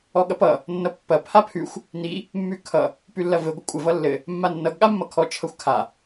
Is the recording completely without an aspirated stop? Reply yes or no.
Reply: no